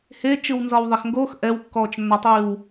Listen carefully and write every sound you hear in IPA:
h e t͡ʃ ɯ w n z ɒ w ðˤ ɛ x ŋ ɡ o x ʔ ɛ w kː ɔː t͡ʃ nː ɒ tˤ iː w

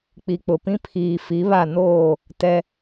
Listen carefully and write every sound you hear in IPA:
k͡p i˨ k͡p ʊ˨ p ĩ˦ pʰ iː˨ f i˨˦ β a˦˨ n oː˦˨ | t ɛ˦

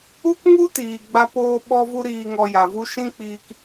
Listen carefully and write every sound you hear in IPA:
u˦ k ŋ u˦ t iː˨ ɡ͡b a˦ p oː˦ ɓ ɔ˦ v u˦ ɾ iː˧ ŋ ɔ˧ j a˨ v u˦ ʃ ĩ˦ k͡p iː˧ k

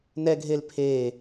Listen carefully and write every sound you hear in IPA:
n ɛ ɡʱ e l pʰ e

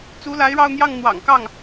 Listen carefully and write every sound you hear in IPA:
t͡s u˧˥ l a˧˥ ɪ̯ ɻ ɑ˥˧ ʊ̯ n̪ j ɑ˥˩ ŋ n̪ w ɑ̰˨˩ ŋ k ɑ˥˩ ŋ

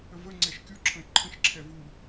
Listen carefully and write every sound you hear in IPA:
ə v ə ŋ͡ǀ ɛ ʃ kʲ u ǁʰ ə̃ e̯ ǃʰ ə̃ ʃ ǁʰ ɛ v u

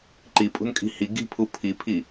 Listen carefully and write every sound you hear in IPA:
ǃ i pʼ ṳ n kʼ i̤ h i ɡ i̤ pʰ u pʰ i pʰ i

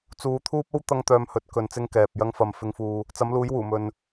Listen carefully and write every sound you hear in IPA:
t͡s uː˧ t̪ʰ uː˥ p̚ o˥ w t̪ ɐ˥ ŋ t̪ œː˧ m h ɵ˨˥ t̚ k ɵ˨ n t͡s ɪ˧ ŋ k ɛː˨ p̚ j ɐ˧ ŋ f ɐ˨ m f ɪ˧ ŋ f uː˧ | t͡s ɐ˨˥ m l uː˨˥ j w uː˨˩ m ɵ˨ n

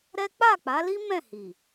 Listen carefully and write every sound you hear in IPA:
ɾ ɛ˦ k͡p a˦˨ k͡p a˨˦ l i˦ m ɛ̃˦˨ h i˨

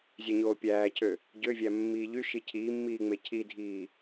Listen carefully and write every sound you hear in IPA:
zʲ æ ɲ oː pʲ æː cʰ ø | ɟ ø vʲ æ mː iː ʎ y ʃ i cʰ iː mː iː ŋ͡m e cʰ i dʱ iː

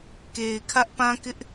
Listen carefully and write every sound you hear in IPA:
k e˨ ɪ̯ kʰ ä˦ ʔ p ã˦ k ɪ˦ ʔ

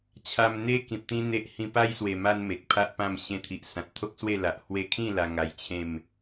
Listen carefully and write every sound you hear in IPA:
t͡ɕʰ a˧ m n̪ e˦ k ĩ˨ p̚ t̪ ĩ˦ n̪ e˦ ʔ h ĩ˧ p a˦ j s w e˨˩ m a˦ n m e˨ k̚ pʰ a˦ ʔ p ã˥˧ m ɕ ẽ˧ t̪ʰ i˨ ʔ s ã˨ t̚ t̪ʰ o˦ k̚ s w e˥˧ l a˨ ʔ h w e˧ kʰ ĩ˥˧ l a˧ ŋ a˧ j t͡ɕʰ ẽ˥˧ m

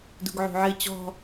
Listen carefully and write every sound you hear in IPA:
d ṳ ɡ ʕ ṳ ʕ ɨ t͡ɕ ɔ̤

